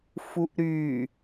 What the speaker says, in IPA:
f u ʔ ɾ y

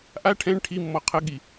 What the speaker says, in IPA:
ʔ a ʈʰ ɛ̃ ɳ ʈʰ i mː ɔ qʰ ə ɠ i

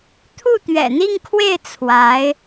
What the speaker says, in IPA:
t̪ʰ u˥˩ t̪ ɥ ɛ̰˨˩ n̪ i˥˧ ŋ kʰ w e˥˩ ɪ̯ t͡sʰ w a˧˥ ɪ̯

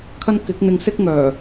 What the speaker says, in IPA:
kʰ ɐ˥ n k ɪ˨˥ k̚ n̪ ɪ˧ ŋ s ɪ˥ k̚ ŋ œː˨˩

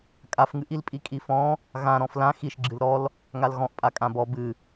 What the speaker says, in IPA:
kʼ a f ŋ ɨ ʔ i l pʼ i kʼ i f ɔ̃ | ɣ ã ɾ ɔ̃ f l ã x i ʃ ɡ͡ǁ ɨ l ɾ ɔ l | ŋ a l ɣ ɔ̃ ʔ pʼ a kʼ ã b ɔ b ɨ

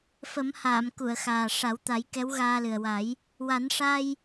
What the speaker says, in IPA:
f ə˨˩˦ m h aː˨˩˨ m k u˨˩˨ ə̯ x aː˨˩ ʂ a˨˩˦ w t̪ a˨˩˦ j k ɛ˧˥ w ɣ aː˧ l ɨ˨˩ ə̯ w a˨˩˦ j | w a˨˩˦ n ʂ a˧ j

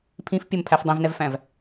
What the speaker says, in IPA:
pʰ ĩ f pʲ ə m pʰ æ f dˤ ẽ v n ɛ v f æ̃ v

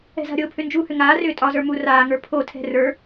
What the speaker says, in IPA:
ɛ̤ z a̤ ɾʲ o pʰ ʏ n d͡ʒ uː h ʏ ŋ aː r ʏː tʼ ɒ z ə˞ m u r aː ŋ ə˞ pʰ o tʰ ɛ̤ r ə˞

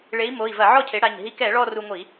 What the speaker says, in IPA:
ɭ e˩˥ i̯ m o˩˧˩ i̯ v ɐ˧˩˧ ʕ ɔ˥˩ cʰ e˩˥ ɽ a˩˧˩ ɲ ɦ i˧ k ɛ˧˩˧ ɭ ɔ˥˧ r u˧ ŋʷ i˧˩˧

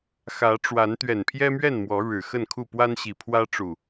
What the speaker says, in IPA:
x ä˨˦ ʈ͡ʂ w a˨˦ n t̪ ɥ ɛ˨˩ n pʰ j ɛ˦ m ɥ ɛ˥˨ n m w ɔ˨˦ ɻ ɻ̩˨˩ x ə˥˨ n kʰ u˥˨ p w a˦ n ɕ i˨˩ pʰ w ä˦ ʈ͡ʂ u˨˩

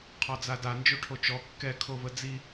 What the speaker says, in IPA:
qʰ ɔ d͡z a d a n d͡ʒ o ʈʰ o t͡ʃ ɔ kː ɛ kʰ o v ə d͡z i

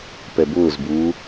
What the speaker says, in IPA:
p ɛ b ʊː z b uː

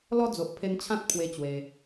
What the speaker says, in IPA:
l ɔ˦ d͡z o˨ ʔ pʰ e˧ n t͡ɕʰ ã˦ t̚ pʰ w e˦ t͡ɕ w e˧

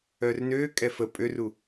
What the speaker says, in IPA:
œː r n øː kʼ ɛ f ə pʼ ø r u

